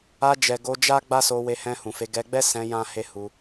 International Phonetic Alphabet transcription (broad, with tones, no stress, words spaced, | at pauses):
a˧d͡ʒɛ˨ ɡo˧d͡ʒa˦ ɡ͡ba˦so˧ we˧hɛ̃˧hũ˨fe˨˦ ɡɛ˧ɡ͡bɛ˦sɛ̃˧ jã˦he˦hu˧